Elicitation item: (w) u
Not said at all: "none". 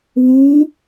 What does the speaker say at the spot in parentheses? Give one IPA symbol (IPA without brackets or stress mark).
w